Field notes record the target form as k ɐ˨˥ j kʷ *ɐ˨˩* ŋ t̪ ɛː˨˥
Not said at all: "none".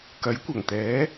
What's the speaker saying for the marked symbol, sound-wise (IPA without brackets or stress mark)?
ɐ˨˩